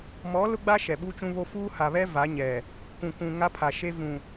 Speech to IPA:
m ɔ˨˦ l ʊ˦ ɡ͡b a˦ ʃ ɛ˨ ɓ u˦ t͡ʃ ũ˦ β o˦ f uː˦ h a˨ β ɛ˦ v a˨˦ ɲ ɛ˨ | k ũ˨ k ũ˨ ŋ a˦ pʰ a˨ ʃ e˦ v ũ˨

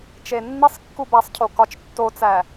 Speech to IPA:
t͡ʃ e nː i sˤ kː u b æ sˤ cʰ o k ɒ t͡ʃ tː o t͡s æ

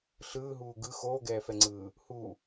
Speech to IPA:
ɬ ɯː ɦ uː ɡ ɯ x oː ɡ ɛː f ɛ ŋ͡ǀ ɯː | h u

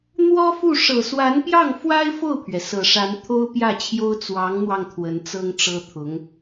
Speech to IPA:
n̪ w ɔ˥ f u˥˩ ʂ ɤ˨˩ s w a˧˥ n p j ɑ˥˩ ŋ f w a˥ ɪ̯ f o˥˩ ʊ̯ pʰ ɥ ɛ˩ s ɤ˨˩ ʂ a˧˥ n t̪ʰ o˥ ʊ̯ p j ä˥˩ t͡ɕʰ j o˥ ʊ̯ t͡s w ɑ˧˥ ŋ n̪ w ɑ˧ ŋ t̪ʰ w ə˧˥ n t͡s ɤ˥ ŋ ʈ͡ʂ ɤ˥ t̪ʰ ʊ˧˥ ŋ

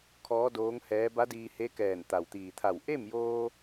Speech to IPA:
kʰ ɔː˧˥ d oː˧˥ ŋ h ɛː˧˥ b a˧˥ d iː˧ h e˧˥ k ɛː˧˩ n t̪ a˩ w t̪ iː˩ t̪ʰ a˧˩ w ʔ e˥˨ m j oː˧

